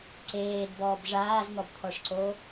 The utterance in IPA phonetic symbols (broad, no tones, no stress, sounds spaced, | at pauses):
ǀ eː d b ɔː b ʐ aː z n̪ ɔ b t̪ʰ ɔ ʂ ǀ o